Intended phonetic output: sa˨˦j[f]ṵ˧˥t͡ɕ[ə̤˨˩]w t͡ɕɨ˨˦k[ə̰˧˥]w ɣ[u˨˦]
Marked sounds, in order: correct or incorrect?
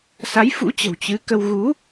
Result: correct, correct, incorrect: ə˧, correct

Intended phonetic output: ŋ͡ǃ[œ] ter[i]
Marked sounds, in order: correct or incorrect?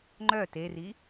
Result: correct, correct

